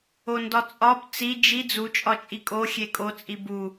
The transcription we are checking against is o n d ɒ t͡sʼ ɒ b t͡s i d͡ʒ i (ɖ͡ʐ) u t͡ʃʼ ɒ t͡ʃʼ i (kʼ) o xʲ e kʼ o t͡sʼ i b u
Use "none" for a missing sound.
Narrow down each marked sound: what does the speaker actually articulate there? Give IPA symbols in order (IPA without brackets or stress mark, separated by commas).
d͡z, kʼ